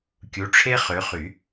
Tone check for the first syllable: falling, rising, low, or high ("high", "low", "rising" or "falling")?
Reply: rising